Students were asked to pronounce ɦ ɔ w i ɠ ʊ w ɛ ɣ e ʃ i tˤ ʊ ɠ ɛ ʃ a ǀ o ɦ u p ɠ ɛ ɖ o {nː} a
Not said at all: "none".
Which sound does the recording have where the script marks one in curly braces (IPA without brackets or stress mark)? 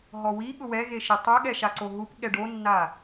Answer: nː